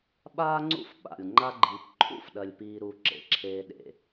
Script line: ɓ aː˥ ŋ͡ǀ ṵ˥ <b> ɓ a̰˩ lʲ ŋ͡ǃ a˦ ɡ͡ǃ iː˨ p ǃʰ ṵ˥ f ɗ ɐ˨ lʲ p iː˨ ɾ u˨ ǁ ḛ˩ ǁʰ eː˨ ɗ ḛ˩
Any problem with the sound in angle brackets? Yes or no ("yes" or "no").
yes